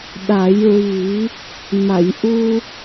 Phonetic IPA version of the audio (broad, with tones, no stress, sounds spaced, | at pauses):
ɗ a˨˩˦ j ɹ i˨˩˦ | m a˨˩˨ j ʔ u˧